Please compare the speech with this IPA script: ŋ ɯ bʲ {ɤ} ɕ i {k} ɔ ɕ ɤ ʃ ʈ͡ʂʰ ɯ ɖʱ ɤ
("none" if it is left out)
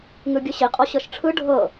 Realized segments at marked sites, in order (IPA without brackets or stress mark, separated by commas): ɯ, qʼ